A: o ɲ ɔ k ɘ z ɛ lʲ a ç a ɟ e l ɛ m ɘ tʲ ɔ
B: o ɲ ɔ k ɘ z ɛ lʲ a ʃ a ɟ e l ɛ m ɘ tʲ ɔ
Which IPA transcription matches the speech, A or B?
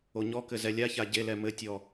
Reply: A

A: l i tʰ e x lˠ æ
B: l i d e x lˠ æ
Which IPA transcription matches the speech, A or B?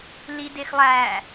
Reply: B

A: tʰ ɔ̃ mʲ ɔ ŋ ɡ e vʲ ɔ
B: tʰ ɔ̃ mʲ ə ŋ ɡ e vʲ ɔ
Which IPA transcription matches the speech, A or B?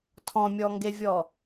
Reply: A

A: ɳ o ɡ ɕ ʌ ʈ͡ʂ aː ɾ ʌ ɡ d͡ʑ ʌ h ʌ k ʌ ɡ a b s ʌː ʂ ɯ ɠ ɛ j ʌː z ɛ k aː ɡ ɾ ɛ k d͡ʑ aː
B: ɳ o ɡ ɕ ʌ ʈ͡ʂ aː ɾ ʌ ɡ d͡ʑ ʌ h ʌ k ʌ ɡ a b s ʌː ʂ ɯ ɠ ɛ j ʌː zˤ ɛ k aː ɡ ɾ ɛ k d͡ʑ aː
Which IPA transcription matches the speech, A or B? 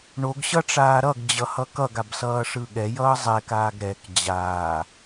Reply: B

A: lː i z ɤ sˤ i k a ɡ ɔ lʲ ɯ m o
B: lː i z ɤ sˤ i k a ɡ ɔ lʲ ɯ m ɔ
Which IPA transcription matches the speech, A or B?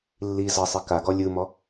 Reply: B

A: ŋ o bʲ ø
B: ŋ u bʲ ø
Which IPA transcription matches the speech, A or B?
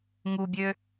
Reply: B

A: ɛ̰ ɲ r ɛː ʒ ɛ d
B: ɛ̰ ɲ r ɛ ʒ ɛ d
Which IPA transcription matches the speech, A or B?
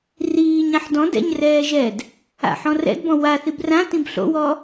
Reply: A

